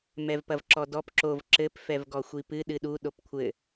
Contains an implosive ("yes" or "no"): yes